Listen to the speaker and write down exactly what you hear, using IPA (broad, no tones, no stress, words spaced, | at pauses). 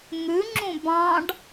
ŋʉŋ͡ǁũ bɑ̃ɖ